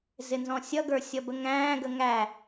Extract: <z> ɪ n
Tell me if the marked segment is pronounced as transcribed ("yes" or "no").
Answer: yes